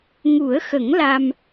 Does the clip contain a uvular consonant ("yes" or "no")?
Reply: no